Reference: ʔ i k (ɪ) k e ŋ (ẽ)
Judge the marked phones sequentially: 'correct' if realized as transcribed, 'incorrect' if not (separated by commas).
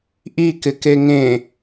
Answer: correct, correct